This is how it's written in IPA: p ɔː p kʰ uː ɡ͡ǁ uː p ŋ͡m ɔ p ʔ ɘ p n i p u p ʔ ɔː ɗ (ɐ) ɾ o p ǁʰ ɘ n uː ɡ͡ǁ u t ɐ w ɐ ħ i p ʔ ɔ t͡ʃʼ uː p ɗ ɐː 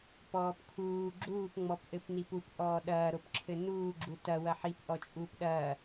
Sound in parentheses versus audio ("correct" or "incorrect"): incorrect